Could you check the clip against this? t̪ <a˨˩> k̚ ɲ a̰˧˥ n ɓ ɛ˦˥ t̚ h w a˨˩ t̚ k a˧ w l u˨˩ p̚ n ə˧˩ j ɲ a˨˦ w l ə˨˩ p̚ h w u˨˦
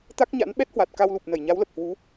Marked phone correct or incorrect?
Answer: incorrect